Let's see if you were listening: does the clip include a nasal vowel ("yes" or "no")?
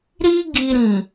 yes